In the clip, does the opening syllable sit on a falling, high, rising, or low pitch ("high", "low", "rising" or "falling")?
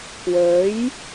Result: rising